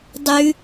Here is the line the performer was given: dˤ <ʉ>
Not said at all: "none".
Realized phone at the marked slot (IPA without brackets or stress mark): ʉ